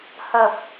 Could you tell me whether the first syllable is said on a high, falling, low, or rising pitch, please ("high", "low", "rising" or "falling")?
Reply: low